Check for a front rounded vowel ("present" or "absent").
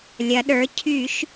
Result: present